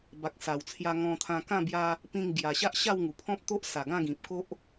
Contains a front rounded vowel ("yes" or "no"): no